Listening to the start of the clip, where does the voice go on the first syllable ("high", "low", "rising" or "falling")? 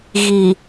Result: low